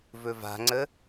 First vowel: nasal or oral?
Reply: oral